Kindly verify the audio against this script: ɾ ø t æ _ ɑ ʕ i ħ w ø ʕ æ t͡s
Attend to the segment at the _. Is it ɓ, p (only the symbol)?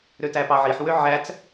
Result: p